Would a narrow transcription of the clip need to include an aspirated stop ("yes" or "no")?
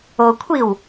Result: yes